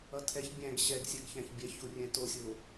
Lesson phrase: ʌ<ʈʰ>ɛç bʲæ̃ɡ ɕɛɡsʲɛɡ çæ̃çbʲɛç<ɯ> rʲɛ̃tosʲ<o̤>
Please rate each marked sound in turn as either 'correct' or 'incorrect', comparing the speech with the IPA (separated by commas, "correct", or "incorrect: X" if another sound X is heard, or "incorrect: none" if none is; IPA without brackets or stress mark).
incorrect: tʰ, incorrect: u, incorrect: o